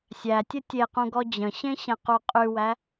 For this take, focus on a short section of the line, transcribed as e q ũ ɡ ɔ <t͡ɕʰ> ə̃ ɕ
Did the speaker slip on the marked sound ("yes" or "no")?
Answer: yes